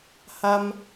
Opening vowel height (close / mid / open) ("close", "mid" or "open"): open